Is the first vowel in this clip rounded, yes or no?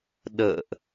no